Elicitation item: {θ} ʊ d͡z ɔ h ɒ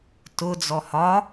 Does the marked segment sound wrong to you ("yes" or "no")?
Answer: yes